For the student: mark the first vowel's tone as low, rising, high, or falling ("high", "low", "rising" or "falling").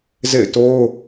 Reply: falling